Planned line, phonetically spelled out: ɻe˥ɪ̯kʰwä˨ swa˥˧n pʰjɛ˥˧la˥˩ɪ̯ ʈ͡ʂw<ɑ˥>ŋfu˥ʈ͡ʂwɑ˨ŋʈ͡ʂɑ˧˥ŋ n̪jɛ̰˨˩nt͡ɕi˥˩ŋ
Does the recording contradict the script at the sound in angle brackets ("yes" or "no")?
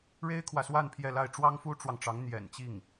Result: no